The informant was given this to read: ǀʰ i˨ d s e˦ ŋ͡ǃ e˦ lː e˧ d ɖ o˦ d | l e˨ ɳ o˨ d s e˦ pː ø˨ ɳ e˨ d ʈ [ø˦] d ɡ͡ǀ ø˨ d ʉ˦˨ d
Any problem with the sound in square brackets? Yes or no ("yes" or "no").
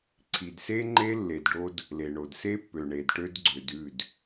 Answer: yes